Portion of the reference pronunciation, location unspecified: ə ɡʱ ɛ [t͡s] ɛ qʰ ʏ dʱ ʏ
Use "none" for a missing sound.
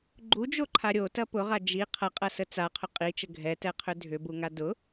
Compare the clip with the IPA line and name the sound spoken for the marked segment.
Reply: t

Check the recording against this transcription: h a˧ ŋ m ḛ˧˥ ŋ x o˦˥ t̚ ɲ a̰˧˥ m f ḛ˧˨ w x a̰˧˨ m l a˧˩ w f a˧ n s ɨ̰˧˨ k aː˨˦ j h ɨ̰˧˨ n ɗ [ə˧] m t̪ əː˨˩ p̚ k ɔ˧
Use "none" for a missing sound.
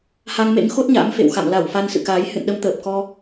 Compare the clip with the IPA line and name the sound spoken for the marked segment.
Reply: ə˨˦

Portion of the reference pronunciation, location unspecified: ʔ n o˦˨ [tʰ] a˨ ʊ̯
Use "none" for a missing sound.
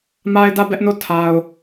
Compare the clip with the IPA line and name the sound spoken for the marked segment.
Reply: tʰ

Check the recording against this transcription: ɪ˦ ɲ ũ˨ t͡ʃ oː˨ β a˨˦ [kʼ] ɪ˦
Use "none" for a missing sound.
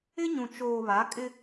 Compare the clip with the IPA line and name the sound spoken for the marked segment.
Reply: kʼ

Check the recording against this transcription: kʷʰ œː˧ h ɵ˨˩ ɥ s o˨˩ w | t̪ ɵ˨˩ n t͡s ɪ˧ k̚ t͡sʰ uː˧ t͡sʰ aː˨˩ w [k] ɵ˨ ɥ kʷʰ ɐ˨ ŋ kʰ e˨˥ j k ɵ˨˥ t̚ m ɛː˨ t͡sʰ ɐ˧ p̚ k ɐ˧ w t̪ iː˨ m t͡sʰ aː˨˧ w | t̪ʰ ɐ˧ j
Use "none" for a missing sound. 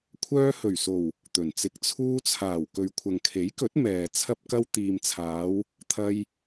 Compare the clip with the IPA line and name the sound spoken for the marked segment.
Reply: k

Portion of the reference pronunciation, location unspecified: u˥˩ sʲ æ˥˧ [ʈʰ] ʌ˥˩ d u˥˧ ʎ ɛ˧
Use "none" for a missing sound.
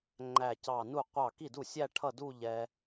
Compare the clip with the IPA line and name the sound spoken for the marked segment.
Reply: ʈʰ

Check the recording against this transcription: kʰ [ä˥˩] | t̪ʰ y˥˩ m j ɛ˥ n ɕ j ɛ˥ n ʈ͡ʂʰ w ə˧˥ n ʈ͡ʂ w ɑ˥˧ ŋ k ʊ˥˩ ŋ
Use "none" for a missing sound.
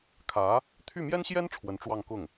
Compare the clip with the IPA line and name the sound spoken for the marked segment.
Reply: ä˧˥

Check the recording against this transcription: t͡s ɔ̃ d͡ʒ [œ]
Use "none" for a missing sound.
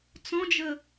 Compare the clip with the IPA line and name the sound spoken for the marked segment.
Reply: ə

